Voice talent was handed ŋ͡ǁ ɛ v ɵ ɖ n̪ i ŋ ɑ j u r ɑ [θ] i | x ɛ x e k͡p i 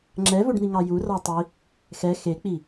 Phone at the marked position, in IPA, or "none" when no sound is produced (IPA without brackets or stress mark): tˤ